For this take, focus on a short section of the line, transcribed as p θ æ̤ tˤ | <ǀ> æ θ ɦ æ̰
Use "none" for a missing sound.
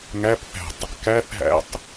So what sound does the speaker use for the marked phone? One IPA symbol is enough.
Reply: k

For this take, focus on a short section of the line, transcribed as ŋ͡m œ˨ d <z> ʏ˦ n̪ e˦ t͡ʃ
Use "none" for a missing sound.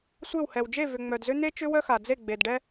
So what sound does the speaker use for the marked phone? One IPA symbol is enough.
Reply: z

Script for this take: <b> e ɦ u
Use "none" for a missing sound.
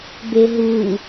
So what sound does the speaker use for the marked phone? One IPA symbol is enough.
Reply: b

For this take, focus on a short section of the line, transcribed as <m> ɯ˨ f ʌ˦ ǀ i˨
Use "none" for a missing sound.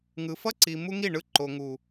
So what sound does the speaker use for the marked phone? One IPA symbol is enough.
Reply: ŋ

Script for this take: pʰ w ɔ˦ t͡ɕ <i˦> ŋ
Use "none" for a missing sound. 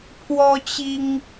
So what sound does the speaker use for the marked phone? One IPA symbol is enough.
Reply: i˦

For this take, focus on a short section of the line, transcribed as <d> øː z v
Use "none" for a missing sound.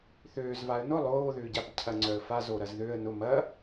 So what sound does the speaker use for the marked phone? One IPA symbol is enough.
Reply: θ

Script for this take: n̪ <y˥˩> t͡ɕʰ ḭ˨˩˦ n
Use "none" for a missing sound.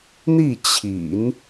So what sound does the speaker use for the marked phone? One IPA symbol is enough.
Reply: i˥˩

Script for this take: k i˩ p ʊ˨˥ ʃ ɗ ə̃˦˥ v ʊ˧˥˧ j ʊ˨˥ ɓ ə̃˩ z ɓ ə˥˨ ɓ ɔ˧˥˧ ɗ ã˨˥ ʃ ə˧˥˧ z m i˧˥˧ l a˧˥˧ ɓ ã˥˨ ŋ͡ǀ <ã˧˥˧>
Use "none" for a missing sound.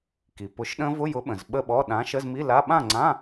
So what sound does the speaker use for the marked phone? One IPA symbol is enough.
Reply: ã˧˥˧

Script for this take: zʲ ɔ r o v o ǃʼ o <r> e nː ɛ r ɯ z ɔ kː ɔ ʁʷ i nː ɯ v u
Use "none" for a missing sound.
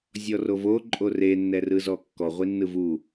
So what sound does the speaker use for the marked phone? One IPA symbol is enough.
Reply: r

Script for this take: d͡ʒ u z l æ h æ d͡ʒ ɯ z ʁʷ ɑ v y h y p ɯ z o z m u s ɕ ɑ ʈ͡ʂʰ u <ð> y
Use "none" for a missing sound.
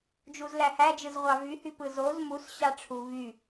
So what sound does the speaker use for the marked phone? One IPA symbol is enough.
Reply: v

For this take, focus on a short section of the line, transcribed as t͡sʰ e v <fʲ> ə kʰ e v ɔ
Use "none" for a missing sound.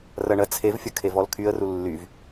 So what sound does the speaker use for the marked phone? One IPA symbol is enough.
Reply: fʲ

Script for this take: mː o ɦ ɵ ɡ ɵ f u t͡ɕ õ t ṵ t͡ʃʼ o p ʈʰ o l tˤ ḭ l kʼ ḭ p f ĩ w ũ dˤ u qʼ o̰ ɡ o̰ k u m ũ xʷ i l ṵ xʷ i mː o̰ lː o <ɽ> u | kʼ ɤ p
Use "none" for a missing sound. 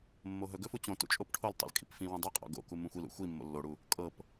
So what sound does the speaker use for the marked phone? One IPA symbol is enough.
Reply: ɽ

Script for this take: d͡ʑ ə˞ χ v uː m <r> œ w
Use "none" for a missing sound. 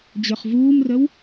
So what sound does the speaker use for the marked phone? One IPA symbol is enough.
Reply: r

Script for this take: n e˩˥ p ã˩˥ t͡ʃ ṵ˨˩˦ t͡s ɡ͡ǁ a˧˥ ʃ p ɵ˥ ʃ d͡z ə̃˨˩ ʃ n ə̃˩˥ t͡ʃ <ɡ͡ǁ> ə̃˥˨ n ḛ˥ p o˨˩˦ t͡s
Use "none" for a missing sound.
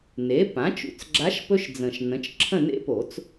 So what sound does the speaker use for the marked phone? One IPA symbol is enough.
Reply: ǁʰ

